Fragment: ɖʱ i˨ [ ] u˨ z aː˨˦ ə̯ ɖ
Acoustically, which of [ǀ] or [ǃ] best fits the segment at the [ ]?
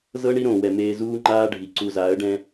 ǀ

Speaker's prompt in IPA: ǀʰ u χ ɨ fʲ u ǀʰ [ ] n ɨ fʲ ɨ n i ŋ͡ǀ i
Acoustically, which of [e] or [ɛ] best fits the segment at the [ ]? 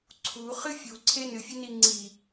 e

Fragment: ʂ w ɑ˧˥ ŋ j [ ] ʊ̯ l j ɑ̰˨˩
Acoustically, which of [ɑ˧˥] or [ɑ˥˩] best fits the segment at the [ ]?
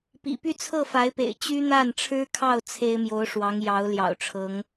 ɑ˧˥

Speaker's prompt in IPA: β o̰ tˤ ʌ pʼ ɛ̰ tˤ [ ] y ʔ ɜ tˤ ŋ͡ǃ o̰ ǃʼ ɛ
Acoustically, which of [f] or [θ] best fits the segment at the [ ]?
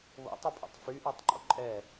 f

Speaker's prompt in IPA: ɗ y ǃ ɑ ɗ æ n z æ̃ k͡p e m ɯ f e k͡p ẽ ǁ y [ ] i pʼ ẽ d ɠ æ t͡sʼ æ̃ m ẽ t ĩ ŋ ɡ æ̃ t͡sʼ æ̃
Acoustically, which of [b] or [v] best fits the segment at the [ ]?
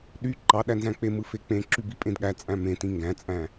b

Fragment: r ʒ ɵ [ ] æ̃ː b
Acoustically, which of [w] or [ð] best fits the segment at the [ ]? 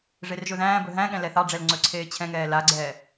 ð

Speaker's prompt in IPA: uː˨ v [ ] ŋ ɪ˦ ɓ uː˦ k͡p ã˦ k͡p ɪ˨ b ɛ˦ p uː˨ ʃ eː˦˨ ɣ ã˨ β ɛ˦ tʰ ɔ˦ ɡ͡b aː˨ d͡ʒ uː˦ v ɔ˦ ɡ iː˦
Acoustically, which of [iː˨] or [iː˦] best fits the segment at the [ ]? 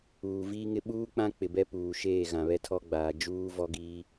iː˦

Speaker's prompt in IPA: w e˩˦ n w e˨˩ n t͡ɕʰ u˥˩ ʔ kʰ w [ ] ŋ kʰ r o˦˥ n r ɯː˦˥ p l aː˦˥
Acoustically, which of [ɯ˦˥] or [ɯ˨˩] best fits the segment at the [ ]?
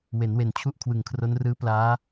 ɯ˨˩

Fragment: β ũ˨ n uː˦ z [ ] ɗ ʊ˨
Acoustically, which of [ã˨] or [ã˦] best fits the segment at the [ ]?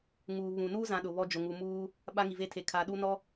ã˨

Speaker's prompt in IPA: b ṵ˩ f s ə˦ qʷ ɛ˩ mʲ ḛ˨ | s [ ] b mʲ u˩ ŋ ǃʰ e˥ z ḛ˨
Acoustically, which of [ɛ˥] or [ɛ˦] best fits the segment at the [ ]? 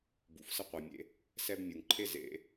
ɛ˥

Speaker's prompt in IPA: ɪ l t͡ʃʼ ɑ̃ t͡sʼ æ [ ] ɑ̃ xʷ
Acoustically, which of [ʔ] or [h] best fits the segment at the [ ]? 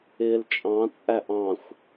ʔ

